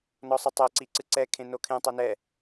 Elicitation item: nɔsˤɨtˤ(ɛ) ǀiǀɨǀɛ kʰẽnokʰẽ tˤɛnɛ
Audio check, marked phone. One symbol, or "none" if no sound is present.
ɛ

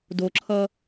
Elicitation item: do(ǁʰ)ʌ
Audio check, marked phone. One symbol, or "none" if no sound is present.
ǁʰ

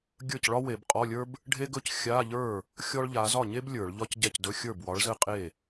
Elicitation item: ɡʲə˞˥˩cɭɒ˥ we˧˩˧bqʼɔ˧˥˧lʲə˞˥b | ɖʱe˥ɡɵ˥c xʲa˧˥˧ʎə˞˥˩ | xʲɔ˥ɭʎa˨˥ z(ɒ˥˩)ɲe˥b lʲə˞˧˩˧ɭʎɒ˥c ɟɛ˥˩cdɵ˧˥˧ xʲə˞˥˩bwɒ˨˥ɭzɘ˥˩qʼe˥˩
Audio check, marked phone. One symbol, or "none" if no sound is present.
ɒ˥˩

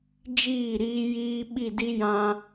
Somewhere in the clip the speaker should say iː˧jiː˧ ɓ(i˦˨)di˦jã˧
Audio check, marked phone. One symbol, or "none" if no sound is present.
i˦˨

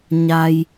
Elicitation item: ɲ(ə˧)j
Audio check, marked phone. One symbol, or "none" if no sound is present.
a˧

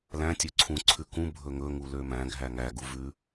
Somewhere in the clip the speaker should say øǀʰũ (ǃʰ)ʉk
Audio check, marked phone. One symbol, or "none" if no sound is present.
ǀʰ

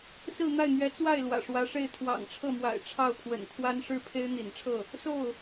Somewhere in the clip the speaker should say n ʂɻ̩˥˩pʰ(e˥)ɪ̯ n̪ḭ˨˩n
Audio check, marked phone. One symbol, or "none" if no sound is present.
e˥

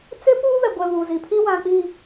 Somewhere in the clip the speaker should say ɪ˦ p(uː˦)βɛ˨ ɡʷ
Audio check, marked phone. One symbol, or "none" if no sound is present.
uː˦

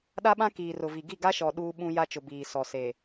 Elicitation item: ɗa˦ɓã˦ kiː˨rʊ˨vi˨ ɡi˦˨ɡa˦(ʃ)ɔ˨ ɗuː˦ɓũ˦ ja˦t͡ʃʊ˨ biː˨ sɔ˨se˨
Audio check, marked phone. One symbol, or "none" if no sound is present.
ʃ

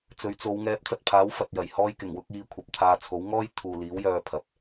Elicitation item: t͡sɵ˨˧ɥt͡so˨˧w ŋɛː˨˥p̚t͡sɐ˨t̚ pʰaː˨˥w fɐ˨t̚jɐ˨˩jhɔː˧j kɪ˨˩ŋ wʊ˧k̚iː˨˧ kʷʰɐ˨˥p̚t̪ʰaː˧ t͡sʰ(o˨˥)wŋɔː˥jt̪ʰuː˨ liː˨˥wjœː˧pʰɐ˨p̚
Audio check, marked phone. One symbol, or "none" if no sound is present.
o˨˥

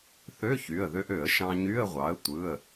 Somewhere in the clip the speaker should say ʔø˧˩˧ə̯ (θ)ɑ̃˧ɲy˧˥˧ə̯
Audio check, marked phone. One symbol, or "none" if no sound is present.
ʃ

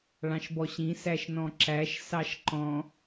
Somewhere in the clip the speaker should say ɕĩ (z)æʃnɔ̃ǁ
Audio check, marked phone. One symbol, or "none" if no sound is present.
s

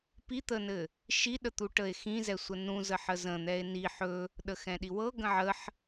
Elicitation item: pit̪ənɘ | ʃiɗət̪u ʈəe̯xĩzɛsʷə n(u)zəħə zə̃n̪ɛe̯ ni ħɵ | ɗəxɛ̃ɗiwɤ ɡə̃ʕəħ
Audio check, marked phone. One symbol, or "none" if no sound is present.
ũ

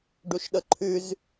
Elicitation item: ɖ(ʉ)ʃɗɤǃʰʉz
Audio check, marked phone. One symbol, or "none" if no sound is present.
u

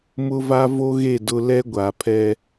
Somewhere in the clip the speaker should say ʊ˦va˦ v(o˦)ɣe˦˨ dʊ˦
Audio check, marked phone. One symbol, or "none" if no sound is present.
o˦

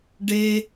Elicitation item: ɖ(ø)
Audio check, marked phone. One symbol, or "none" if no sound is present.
e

